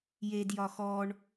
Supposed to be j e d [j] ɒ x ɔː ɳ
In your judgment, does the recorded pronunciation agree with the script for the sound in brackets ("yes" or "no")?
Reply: yes